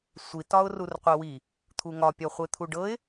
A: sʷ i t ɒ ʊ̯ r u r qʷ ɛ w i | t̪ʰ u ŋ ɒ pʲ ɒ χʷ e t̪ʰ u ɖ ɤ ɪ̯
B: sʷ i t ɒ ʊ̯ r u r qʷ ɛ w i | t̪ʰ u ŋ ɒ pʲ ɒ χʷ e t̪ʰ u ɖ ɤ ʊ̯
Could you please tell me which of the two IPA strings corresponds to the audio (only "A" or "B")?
A